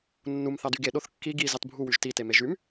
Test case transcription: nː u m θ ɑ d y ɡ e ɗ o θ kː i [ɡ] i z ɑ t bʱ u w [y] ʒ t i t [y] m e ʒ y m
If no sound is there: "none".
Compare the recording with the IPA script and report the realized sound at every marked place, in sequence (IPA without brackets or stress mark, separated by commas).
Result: ɡ, y, e